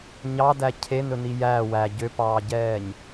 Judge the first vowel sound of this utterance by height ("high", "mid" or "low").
low